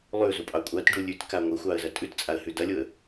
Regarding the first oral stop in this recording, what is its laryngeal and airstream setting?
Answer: ejective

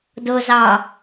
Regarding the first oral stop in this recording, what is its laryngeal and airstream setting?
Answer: plain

